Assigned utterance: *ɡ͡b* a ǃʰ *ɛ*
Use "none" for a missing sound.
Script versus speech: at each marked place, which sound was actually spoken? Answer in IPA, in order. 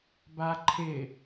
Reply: b, ɪ

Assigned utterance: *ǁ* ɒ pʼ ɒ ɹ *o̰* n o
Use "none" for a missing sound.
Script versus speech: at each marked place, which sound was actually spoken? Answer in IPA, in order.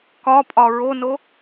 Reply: k, o

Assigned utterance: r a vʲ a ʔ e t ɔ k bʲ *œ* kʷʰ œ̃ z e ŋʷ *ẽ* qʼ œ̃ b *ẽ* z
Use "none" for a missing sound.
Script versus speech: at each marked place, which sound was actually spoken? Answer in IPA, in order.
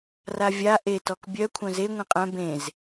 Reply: œ, ẽ, ẽ

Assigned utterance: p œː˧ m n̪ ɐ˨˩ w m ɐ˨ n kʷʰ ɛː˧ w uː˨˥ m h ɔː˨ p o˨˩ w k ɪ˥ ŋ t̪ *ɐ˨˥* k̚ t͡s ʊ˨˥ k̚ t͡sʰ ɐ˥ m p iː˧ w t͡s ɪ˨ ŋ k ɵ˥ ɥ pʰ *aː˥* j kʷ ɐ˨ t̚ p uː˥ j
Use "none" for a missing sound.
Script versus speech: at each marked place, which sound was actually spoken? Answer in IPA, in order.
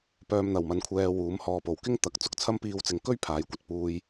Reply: ɐ˨, aː˨˧

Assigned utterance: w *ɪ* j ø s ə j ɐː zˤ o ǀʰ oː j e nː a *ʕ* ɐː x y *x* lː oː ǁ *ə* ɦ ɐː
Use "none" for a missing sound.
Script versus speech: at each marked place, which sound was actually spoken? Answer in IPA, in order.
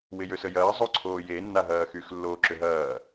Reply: ɪ, ɦ, x, ʏ

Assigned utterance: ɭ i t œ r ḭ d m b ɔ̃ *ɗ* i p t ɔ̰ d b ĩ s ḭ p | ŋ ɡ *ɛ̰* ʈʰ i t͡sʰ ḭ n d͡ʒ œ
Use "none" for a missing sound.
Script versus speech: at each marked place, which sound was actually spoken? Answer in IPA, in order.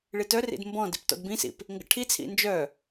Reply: d, ə̰

